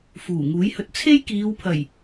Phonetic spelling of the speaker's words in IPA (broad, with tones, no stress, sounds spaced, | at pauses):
f uː˨˩ ŋ uː˨˥ j h ɵ˧ t̚ t͡sʰ e˥ j k iː˨˧ w pʰ ɐ˨˩ j